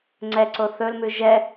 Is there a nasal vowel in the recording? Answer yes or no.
no